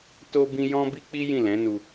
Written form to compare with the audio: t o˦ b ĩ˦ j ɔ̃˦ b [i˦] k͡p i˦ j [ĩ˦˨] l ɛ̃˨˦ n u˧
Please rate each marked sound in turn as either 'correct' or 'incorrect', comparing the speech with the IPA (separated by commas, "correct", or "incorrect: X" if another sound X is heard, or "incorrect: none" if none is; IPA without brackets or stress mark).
correct, correct